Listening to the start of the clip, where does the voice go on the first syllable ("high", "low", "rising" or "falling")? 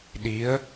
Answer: rising